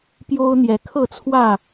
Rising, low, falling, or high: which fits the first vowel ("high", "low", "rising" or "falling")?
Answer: high